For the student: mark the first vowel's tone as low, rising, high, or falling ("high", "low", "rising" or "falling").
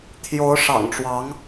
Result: rising